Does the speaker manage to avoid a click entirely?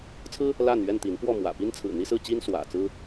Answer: yes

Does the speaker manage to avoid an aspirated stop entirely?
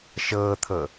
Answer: no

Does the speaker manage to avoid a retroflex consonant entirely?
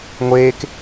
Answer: yes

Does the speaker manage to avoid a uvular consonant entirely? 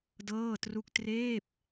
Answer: yes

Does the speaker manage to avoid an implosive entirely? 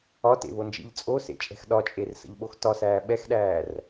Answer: no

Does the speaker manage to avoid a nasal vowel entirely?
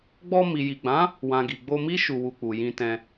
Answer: no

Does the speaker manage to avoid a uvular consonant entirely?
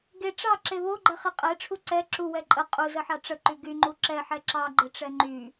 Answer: no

